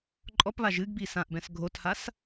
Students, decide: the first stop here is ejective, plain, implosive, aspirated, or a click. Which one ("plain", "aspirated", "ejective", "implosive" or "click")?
click